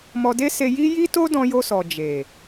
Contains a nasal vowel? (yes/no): yes